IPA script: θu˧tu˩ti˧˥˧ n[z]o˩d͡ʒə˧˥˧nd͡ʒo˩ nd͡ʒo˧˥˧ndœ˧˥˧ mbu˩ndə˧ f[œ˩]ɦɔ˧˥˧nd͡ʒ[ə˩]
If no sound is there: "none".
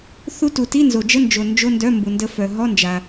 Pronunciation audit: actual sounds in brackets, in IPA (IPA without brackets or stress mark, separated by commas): z, œ˩, a˩